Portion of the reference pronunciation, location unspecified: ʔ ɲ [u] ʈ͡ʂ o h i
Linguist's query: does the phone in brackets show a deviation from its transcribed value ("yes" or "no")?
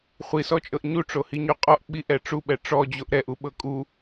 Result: no